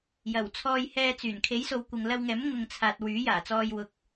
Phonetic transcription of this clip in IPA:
jɐ˨˩wt͡sʰɔː˧j hɛː˧t͡syː˨˩n kʰe˨˥jso˨˧w kʷɪ˨ŋlɐ˧wŋɛː˨˥m ŋʊ˨ŋt͡sʰaː˨t̚ wyː˨˥jaː˨˩t͡sɔː˧j wʊ˨k̚

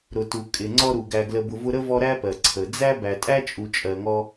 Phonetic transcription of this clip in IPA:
ɾʊ˩tu˩ kʼɪ˩ ŋ͡ǀɔ˦ɾu˩ɡæ˨ ɡlə˨bʊ˨ vʊ˦ɾə˥vɔ˦ ɾæ˥pɜ˩ ǀʰə˩ d͡zæ˥ bæ˨tʼæ˥t͡ʃʼu˨ t͡ʃʼɜ˨ŋɔ˦

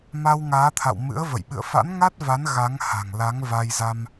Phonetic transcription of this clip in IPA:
ma˧wŋaː˨˦t̪ʰa̰˧˨w mɨ̰˧˥ə̯və̰˧˨j ɓɨ̰˧˨ə̯fa̰˧˥n ŋa˦˥t̚va˨˦n ɣa˨˦ŋha̤˨˩ŋ la˨˦ŋ va˧jza˧m

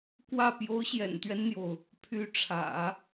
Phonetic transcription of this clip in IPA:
kwä˥˩ pjo˧˥ʊ̯ɕjɛ̰˨˩nt̪ɥɛ˦nn̪jo˩ʊ̯ | pʰy˧˥ʈ͡ʂʰä̰˨˩˦

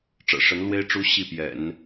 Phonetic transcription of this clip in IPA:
ʈ͡ʂɤ̰˨˩ʂə˧˥nlwe˥ɪ̯ ʈ͡ʂu˧˥ ɕi˥˩pjɛ̰˨˩˦n

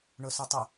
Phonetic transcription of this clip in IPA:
ɳʊsʊtˤə

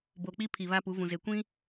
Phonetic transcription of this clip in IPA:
bo˨k͡pi˦pʰi˨ βa˦pu˨˦vũ˨ ze˨kʷĩ˦

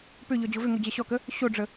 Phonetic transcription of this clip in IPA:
pʏʎɔ d͡ʑovʏŋo d͡ʑɛɕɔkə | ɕoɖ͡ʐə

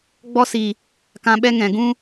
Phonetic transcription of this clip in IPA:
ɡ͡bɔ˦si˨ | kã˧ɓɛ˦ŋɛ̃˨ ɡũ˦

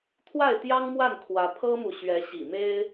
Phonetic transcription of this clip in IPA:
t̪ʰwa˥˩ɪ̯t̪jɑ˥ŋmwa˥˩nkʰwä˧˥ pʰɤ˥mu˨ ɕɥɛ˧˥ɕḭ˨˩me˥ɪ̯

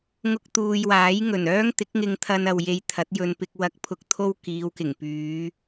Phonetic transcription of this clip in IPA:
ŋʊ˧k̚t̪uː˨jwaː˨˥jŋɵ˨˩n œː˥ŋ t̪ɪ˨˥k̚ŋɪ˧ŋ t̪ʰɐ˧n ɐ˨w je˧jt̪ʰɐ˨˥t̚jɵ˧npɪ˧k̚ wɐ˨k̚pʰʊ˨k̚t̪ʰo˧w kiː˨˧wkɪ˨˩ŋ pyː˨˧

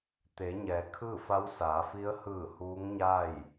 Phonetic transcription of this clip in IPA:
t̪e˩˧ɲɛː˩˧ kʰɯː˥˨fa˧˥wsaː˩˧fi˧˥ə̯ hɯː˧˩ huː˧˥ŋɲa˥˨j

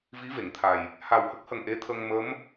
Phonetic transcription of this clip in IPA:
vi˧˥ ve˨˩˨ŋt̪ʰa˨˩j | ha˨˩whə˦˥k̚hə˨˩ŋ ʔe˧˥t̪ʰə˧ŋ mə˧˥m

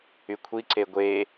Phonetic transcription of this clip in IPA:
ykʷʰi ǀeɡʷe

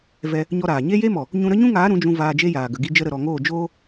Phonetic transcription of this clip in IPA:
vɛ˧ | ɲɔ˦ɾaː˨ ɲe˧je˧mɔ˨ | ɲũ˧ɾə˦ɲũ˦ŋaː˨˦ ɾũ˨˦d͡ʒũ˧ vaː˧d͡ʒe˦jaː˨ ɡə˨ɡi˧d͡ʒə˧ ɾə˨ɾɔ˨ŋoː˦˨ d͡ʒoː˦

